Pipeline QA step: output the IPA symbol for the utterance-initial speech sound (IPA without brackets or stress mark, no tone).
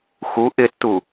x